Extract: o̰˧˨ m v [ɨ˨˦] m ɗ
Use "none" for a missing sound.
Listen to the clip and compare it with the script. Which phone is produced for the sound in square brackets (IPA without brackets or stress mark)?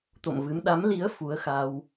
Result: ɨ˨˦